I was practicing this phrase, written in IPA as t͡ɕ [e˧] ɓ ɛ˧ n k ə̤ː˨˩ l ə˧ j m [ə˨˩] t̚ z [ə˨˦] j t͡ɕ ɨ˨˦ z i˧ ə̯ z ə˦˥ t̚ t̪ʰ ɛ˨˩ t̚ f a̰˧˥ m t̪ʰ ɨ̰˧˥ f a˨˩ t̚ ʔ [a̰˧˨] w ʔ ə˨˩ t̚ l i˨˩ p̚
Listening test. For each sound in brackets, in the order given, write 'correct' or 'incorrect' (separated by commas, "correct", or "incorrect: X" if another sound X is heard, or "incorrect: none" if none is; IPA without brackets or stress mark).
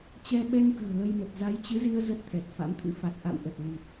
incorrect: ɛ˧, correct, incorrect: a˨˦, correct